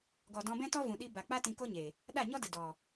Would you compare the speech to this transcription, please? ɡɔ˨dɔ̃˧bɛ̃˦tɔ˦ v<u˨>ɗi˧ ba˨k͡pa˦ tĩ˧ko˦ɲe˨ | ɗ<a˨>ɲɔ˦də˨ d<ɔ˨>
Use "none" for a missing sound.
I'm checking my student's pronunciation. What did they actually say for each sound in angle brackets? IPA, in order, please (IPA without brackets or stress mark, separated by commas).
ũ˨, a˦˨, ɔ˨